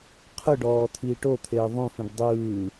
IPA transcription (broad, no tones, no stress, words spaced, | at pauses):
qʰɯɖɔː t̪ʰiːʈot̪ʰeː ðˤũfĩɖ dˤɯː